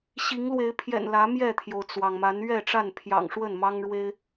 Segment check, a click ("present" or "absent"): absent